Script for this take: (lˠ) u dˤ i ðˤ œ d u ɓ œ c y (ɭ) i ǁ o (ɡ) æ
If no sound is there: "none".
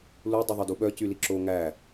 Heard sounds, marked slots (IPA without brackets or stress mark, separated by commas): l, l, ŋ